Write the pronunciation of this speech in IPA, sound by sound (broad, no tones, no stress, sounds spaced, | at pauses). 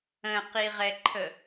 ə̃ q i ʁ ɛ ǃʰ ə